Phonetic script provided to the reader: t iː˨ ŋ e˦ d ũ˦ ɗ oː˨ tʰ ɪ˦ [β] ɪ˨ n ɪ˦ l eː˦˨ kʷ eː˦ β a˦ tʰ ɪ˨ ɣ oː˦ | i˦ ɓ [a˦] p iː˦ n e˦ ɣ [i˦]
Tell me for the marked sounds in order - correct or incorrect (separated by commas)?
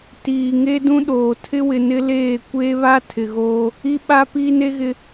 incorrect, correct, incorrect